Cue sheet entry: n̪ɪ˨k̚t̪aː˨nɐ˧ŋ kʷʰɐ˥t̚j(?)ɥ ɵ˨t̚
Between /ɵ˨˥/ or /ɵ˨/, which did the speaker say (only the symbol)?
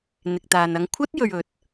ɵ˨